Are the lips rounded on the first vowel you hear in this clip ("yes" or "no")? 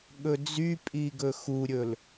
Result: yes